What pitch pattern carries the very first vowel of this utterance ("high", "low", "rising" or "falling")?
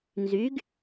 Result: rising